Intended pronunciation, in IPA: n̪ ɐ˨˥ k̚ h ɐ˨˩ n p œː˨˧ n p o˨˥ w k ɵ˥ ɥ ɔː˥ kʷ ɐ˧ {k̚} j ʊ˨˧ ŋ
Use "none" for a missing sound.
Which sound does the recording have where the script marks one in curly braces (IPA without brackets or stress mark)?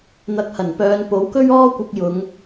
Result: k̚